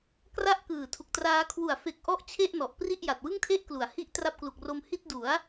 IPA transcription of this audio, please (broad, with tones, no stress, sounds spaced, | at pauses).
k r a˥˩ ʔ k ɯː˨˩ tʰ u˨˩ k̚ t r aː˦˥ kʰ w u˨˩ a̯ f e˨˩ k̚ ʔ ɔ˥˩ ʔ t͡ɕʰ e˥˩ ʔ n ɔ˨˩ ʔ p r i˥˩ ʔ j a˨˩ t̚ w ɯ˥˩ ŋ tʰ e˥˩ ʔ k l u˩˦ a̯ h i˦˥ ʔ t r a˦˥ p̚ k l u˨˩ k̚ r o˧ m h i˥˩ t̚ d u˩˦ a̯